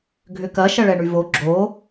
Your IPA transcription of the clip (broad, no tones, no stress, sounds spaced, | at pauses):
ɡʱ ʏ k ɐ ʃ ɐ ɭ ɛ ɳ y v o ɡ͡ǁ o